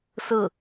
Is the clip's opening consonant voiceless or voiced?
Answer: voiceless